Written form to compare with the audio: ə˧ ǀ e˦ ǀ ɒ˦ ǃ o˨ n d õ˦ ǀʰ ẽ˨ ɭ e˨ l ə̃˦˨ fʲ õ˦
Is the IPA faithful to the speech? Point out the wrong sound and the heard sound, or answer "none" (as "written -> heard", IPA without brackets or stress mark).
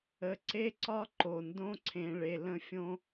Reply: none